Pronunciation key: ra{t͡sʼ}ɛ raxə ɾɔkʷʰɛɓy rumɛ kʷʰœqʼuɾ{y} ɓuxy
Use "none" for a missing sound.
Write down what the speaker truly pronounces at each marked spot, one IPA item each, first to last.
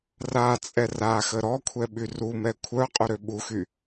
t͡sʼ, ø

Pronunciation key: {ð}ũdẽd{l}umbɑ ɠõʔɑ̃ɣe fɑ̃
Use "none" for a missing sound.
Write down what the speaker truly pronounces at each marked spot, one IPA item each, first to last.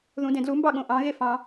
ð, l

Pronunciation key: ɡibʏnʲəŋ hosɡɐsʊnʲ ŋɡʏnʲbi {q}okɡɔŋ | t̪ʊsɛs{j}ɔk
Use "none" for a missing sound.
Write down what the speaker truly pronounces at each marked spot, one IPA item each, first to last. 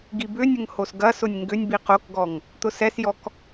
q, j

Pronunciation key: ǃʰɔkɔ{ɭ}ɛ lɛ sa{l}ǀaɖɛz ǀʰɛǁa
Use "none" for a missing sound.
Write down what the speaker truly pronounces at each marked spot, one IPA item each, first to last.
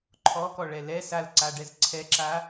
ɭ, l

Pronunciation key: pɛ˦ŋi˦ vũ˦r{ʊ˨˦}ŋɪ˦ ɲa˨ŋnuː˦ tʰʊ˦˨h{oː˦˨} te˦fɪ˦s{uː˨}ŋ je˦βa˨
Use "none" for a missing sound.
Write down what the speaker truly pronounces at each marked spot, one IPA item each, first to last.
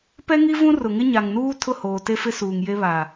ʊ˨, oː˨, uː˨

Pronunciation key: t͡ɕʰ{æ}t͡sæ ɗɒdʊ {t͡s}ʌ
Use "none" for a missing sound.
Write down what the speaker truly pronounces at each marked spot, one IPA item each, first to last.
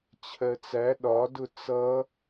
ɜ, t͡s

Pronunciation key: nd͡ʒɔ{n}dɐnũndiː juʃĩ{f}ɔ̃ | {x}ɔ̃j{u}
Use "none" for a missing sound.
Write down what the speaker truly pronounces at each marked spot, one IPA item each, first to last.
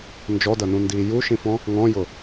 none, f, ŋ, ʊ

